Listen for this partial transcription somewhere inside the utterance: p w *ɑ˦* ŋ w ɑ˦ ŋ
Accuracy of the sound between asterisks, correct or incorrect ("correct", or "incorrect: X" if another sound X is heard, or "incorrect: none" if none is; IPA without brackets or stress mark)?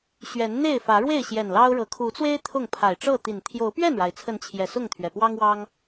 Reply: correct